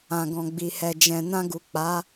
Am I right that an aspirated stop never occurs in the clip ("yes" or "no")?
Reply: yes